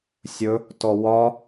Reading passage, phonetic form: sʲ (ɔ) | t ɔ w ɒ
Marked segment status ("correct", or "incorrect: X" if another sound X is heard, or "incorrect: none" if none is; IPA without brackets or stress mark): incorrect: ɵ